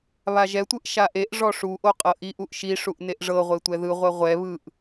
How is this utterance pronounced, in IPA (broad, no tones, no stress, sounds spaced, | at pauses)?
β a ʒ ɛ tʷ ɯ ʔ ʃ a ʔ e ʔ ʐ ɔ ʂ u ʔ o qʼ ɤ ʔ i ʔ u ʔ ʃ i ʂ u ʔ n e ʔ ʐ ɤ ʁʷ e tʷ ɛ ð ɯ ʁʷ ɛ ʁʷ ɛ β ɯ ʔ